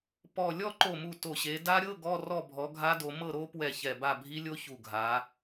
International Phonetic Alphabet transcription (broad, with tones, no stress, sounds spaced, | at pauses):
p ɔ˧˩ lʲ ɔ˥˨ ǃ o˧˩ m u˧˩ t o˧˩ ɕ e˨˦ d a˦˥ ɾʲ ɤ˧˥˧ ɡ ɔ˧˥˧ r ɔ˥˨ bʱ ɔ˨˦ ɡʱ a˦˥ d o˨˦ m ɤ˥˨ ɾ o˦˥ p w ɛ˧˩ ç ɛ˧˩ b a˥˨ bʱ i˦˥ lʲ o˦˥ ç u˧˩ ɡʱ a˨˦